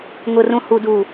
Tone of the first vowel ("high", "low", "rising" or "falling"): low